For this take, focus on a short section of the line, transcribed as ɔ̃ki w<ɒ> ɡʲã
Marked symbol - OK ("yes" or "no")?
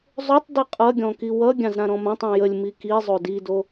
no